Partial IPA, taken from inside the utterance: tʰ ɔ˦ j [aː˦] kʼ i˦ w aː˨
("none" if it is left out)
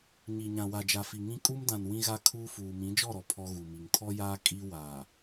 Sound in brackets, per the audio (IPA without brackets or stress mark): aː˦